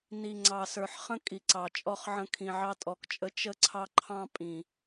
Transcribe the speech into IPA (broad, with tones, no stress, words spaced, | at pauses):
ni˩ŋ͡ǀɑ˩sə˞˩ħ χə̃˧ kʼi˩ǀɑ˩t͡ʃʼɔ˧χʕə̃˧ kʰĩ˩ʕɑ˧tʼɔ˩kt͡ʃʼə˧ t͡ʃə˧ǀʰɑ˧ǃʰɑ̃˧ pʼĩ˩